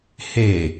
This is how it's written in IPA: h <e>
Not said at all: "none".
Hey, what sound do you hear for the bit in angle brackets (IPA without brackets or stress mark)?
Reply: e